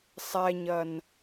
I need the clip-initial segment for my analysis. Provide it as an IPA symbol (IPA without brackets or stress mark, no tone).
sˤ